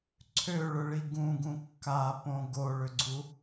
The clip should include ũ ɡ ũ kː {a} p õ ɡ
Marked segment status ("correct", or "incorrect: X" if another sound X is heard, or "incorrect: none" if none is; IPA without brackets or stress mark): correct